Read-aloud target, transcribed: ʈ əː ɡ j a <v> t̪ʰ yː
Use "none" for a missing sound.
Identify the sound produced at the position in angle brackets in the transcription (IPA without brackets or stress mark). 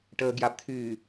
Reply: b